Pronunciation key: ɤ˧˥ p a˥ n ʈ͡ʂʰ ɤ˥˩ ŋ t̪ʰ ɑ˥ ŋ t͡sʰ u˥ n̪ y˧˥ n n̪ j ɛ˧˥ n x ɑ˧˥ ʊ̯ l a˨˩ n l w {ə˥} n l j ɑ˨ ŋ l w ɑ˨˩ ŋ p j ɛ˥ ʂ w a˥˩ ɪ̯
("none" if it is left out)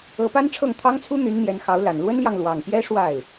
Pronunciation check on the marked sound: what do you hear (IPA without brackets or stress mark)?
ə˥